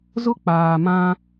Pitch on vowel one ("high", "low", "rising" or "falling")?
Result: high